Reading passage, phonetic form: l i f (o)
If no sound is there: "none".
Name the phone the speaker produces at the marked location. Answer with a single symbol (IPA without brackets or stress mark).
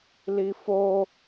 o